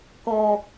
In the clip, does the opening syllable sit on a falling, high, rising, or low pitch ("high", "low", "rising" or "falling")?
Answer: low